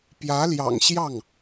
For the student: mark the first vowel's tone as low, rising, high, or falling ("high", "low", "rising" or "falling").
rising